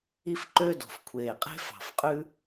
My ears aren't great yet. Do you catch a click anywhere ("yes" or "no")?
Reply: yes